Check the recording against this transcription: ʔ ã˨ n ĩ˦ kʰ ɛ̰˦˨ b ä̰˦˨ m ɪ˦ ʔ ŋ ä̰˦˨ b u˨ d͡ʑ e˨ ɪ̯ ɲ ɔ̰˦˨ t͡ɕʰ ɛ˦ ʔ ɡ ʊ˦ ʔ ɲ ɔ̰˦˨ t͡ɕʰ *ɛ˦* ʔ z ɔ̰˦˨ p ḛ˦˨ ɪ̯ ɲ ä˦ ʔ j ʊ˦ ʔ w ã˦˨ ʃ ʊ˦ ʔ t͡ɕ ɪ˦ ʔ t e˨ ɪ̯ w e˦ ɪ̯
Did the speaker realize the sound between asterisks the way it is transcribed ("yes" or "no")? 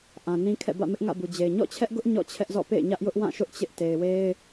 yes